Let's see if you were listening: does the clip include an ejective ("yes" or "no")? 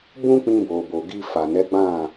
no